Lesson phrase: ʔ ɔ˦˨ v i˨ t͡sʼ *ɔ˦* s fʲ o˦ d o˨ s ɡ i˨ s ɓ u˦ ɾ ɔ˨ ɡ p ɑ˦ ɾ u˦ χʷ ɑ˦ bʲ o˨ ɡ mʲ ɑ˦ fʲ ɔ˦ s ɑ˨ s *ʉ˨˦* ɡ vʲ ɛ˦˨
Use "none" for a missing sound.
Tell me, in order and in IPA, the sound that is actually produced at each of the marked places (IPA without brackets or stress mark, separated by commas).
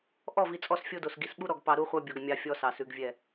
ɔ˦, ʉ˨˦